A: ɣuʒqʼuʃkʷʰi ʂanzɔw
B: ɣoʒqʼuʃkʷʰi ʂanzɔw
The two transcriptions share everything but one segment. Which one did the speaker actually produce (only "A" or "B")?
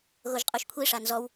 B